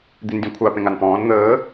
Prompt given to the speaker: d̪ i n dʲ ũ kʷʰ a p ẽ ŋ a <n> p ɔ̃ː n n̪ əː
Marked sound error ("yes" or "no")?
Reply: no